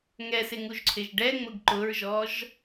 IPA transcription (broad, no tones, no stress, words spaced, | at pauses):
ŋɛsɪŋuʒǀʰɪʒ ɖɛŋ͡mʊɡ ǃʊɹʒɔʒ